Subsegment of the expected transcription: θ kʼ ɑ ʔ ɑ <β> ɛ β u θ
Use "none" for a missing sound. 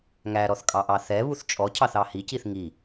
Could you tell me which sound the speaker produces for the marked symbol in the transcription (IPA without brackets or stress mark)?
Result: θ